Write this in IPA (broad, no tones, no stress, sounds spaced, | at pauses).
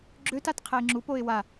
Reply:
ɡ͡ǁ ø t a t qʰ ɛ ɪ̯ ŋ͡ǁ u p o ɪ̯ w a